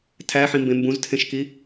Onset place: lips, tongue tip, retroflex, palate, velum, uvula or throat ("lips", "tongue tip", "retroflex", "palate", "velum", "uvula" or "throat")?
tongue tip